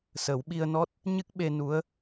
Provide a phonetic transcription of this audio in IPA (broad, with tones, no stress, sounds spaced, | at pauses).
s ə˨˩˦ w ɓ i˧ ə̯ n ɔ˦˥ t̚ | ɲ ɨ˦˥ k̚ ɓ e˧ n u˧˥ ə̯